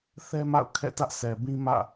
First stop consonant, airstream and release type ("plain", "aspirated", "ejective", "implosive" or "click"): aspirated